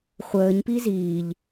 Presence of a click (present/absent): absent